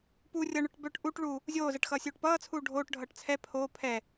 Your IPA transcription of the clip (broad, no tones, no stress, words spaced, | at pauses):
pu rʲʌɳœʈ bœʈ ʔuʈ ɭu | zʲoːzɜʈxʌːsʲoːʈ pʌːt͡sʰuː ɖʱoːʈ ɖʱʌːʈt͡sʰɛ pʰoː pʰɛ